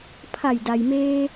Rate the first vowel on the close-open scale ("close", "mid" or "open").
open